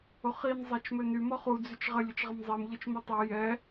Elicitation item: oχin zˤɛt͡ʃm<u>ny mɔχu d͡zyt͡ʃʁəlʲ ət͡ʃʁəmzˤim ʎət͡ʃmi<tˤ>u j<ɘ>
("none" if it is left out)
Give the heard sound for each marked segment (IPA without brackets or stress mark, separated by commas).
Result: ø, tˤ, ɛ